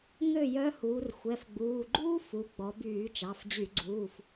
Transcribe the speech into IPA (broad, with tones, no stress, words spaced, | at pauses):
ŋø˥˩ jœ˧˥huː˩˧r xʷɛ˩˧˩fɡ͡buː˩˧˩ɡ͡ǃuː˥ fu˩˧ɡ͡bɔ˩˧byː˧˩˧ t͡ʃɑ˩˧˩fd͡ʑy˧˩˧ɡ͡ǀuː˩˧˩f